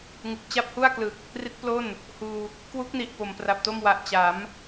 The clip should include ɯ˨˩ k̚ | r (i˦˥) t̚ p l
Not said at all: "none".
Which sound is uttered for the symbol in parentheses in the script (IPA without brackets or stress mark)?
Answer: i˦˥